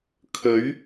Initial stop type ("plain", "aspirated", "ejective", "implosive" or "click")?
aspirated